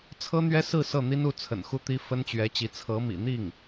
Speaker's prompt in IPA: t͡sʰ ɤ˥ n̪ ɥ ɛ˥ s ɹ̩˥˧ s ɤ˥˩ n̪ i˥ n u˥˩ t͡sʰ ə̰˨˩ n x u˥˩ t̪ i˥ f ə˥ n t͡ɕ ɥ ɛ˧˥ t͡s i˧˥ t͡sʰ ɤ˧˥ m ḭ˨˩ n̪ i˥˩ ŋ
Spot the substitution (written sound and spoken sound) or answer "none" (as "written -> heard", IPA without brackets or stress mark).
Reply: t͡s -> t͡ɕ